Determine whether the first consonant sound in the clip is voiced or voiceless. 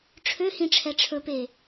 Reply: voiceless